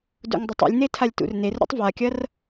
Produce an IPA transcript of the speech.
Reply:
dṵŋdˤutˤṵlʲne tʰalʲtṵrnerɾʲṵtˤ vakʲɐr

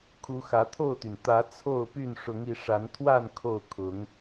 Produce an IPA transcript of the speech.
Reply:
kʰu˨˦xä˨˦t̪ʰo˥˨ʊ̯t̪y˩n t̪ä˨˦ t͡sʰo˥˨ʊ̯py˥˨n ʂʊ˨˦ŋi˨˦ʂa˨˦nt̪ʰwa˥˨n kʰo˥˨ʊ̯ kʰʊ˨˦ŋ

